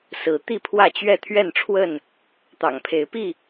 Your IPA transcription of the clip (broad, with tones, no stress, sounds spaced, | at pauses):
s ɹ̩˨˦ t̪ i˥˨ pʰ w ä˥˨ t͡ɕ ɥ ɛ˥˨ t̪ʰ ɥ ɛ˥˨ n ʈ͡ʂʰ w ə˥˨ n | t̪ ɑ̰˨˩ ŋ pʰ e˨˦ ɪ̯ p i˥˨